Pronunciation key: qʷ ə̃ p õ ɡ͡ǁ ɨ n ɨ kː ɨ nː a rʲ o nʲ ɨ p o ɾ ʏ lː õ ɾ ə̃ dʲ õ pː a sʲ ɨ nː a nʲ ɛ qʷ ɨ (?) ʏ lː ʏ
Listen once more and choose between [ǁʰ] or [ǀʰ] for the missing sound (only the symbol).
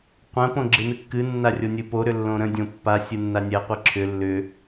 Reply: ǁʰ